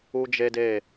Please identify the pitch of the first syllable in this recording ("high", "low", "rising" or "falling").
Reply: high